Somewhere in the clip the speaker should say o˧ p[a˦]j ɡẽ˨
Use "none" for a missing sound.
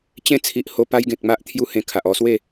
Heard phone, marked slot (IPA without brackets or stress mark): a˦